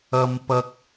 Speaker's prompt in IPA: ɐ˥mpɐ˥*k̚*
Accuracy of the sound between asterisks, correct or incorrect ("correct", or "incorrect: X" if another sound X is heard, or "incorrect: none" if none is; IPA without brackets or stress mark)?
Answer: correct